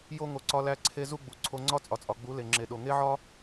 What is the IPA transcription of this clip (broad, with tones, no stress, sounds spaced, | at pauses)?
j o˧ ŋ o˨ ǀ ɒ˧ l æ˧ ǀʰ e˧ z u˦ ɡ͡b u˨ ǀʰ o˧ ŋ͡ǀ ɒ˦ t͡sʼ ɒ˨ t͡sʼ ɒ˨ ɡ͡b u˨˦ l e˨ ŋ͡ǁ e˨ ɗ o˨ ŋ e˦ ʕ ɒ˦